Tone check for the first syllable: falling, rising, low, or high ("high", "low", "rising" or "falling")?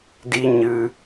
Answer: high